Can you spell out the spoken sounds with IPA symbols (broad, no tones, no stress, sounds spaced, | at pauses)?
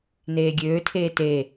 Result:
n eː ɡʲ øː tʰ eː t e